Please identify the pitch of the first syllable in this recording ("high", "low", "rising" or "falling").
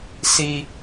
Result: high